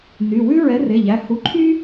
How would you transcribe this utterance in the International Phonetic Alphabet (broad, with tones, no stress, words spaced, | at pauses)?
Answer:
ny˩˧˩ wʉ˥ ɹɛ˨˥re˩˧˩ʎæ˩˧˩ hu˨˥ǃʰy˥